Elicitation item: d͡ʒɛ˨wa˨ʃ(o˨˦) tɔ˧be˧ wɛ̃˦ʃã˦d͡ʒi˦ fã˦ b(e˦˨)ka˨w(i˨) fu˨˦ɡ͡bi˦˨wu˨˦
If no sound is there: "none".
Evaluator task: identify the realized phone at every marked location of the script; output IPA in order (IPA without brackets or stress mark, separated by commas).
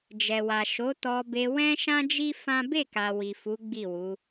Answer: o˨˦, e˦˨, i˨